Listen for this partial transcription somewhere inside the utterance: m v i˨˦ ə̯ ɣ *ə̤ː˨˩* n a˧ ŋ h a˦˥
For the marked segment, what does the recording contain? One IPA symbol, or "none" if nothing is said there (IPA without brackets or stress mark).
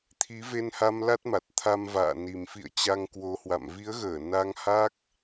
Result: əː˧˩